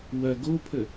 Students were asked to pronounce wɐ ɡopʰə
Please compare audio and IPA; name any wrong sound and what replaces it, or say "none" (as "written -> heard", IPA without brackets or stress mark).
none